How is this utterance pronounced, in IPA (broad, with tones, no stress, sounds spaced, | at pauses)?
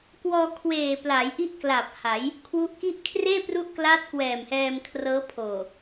k w ɔː˧ kʰ w eː˨˩ p l a˩˦ j ʔ i˦˥ ʔ k l a˨˩ p̚ h a˩˦ j | kʰ w u˦˥ ʔ k i˥˩ ʔ kʰ r eː˥˩ p r u˦˥ ʔ k l aː˦˥ t̚ k w ɛː˨˩ m h ɛː˧ m kʰ r ɤː˦˥ pʰ oː˨˩